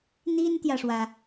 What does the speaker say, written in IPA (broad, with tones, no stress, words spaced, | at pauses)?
n̪i˥nt̪jä˨ʂwä˩